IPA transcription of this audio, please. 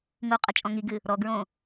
ŋuqʼɘ t͡ʃʼɔ̃ŋiɡɨ | ɾɔɡɹõ

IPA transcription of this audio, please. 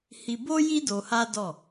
hi˧ bo˦ji˦ do˧ha˦dɔ˦˨

